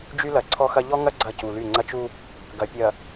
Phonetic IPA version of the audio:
d͡ʒ y˦ l ɐ˨ ǀʰ ɔ˦ x ɐ˦ ʎ ɔ˦ ŋ ɐ˦ ɡ͡ǀ ɐ˦˨ c u˨ l y˦˨ ŋ͡ǀ ɐ˦ t͡ʃ u˦ | ɡ ɐ˨ pʲ ɐ˨

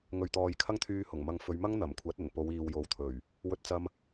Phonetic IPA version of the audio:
ŋ ɵ˨ ɥ t̪ ɔː˨ j kʰ ɐ˥ ŋ t̪ʰ yː˧ h ʊ˨˩ ŋ m ɐ˨ ŋ f ɵ˨˧ ɥ m ɐ˥ ŋ n̪ ɐ˨˩ m kʷʰ ɐ˨˥ t̚ ɵ˨˩ n p o˨˧ w iː˨ w j o˨˥ w t̪ʰ ɵ˨˩ ɥ | w ɵ˥ t̚ t͡s ɐ˥ m

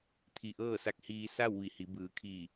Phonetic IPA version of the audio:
t̪ʰ i˧˩ ʔ ɤː˥˨ s a˧ k̚ h iː˧ s a˥˨ w ʋ i˧˩ h i˩˧ b ɯː˩˧ kʰ iː˧˩

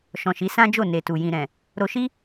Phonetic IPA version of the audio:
ʃ ɔ̃˨ ʃ i˨˦ s ã˦ d͡ʒ o˦˨ n e˨ t u˨ j ĩ˨ ɾ ɛ̃˨ | ɾ o˧ ʃ i˦

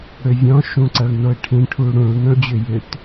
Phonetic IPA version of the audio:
ɽ ʏ vʲ ɔ̃ ʃ ũ ǀ ɐ ɭ n o ɪ̯ ʈʰ ĩ ʈʰ u ɽ ũ ɭ n ɔ̃ ɭ d͡ʑ ʏ j ʏ t

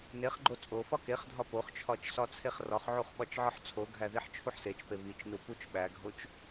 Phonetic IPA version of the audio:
n e χ ɡ͡ǃ o t͡sʼ o f ɒ k e χ dʱ ɒ p o χ t͡ʃʰ ɒ t͡ʃ s ɒ t͡sʰ e χ r ɒ χ ʕ u χ ɓ ɒ t͡ʃ ʕ ɒ ħ t͡sʰ o ɡʱ æ ð i ħ t͡ʃʰ u ħ s e t͡ʃ p e β i t͡ʃ n u p u t͡ʃ ɓ æ ɡʱ o t͡ʃ

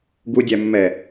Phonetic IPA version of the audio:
ɡ u dʲ æ mː ɛ

